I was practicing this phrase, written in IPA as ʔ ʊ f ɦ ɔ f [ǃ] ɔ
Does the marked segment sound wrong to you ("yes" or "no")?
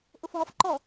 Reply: no